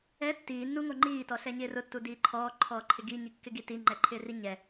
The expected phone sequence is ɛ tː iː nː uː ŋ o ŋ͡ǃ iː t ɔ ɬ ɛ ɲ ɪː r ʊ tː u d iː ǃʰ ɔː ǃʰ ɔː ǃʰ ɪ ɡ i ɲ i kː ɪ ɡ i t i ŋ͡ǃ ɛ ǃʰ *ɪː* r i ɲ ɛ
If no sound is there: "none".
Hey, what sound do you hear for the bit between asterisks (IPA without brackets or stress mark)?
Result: ɪː